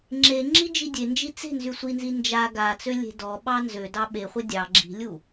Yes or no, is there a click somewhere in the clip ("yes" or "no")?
yes